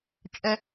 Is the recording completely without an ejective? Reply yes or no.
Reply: no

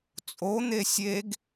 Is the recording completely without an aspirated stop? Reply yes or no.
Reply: yes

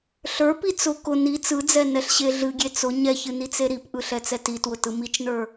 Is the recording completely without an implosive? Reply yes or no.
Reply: yes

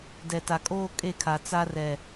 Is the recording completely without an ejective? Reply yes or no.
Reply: no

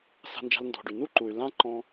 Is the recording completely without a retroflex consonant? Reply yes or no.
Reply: no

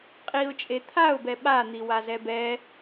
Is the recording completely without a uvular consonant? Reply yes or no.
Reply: no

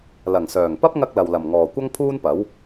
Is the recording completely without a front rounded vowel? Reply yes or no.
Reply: no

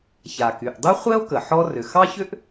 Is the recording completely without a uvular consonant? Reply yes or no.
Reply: no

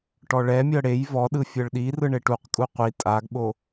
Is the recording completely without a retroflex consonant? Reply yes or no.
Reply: no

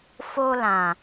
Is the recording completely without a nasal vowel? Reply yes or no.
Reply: no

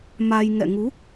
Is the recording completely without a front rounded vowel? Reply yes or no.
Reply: yes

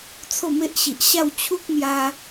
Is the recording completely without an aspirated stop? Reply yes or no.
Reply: no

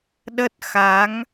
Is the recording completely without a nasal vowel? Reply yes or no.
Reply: yes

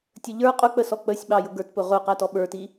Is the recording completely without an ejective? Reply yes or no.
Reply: no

